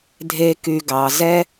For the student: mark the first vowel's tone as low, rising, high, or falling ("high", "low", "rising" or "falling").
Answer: high